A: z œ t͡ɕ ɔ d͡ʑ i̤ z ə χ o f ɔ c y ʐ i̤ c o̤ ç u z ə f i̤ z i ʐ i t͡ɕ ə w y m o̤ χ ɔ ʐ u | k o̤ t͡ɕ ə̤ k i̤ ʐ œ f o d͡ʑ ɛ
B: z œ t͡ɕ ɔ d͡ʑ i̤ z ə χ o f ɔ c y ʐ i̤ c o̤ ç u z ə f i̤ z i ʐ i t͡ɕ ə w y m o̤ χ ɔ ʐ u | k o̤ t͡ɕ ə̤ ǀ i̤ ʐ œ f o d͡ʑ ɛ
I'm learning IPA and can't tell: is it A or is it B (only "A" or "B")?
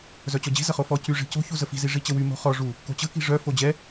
A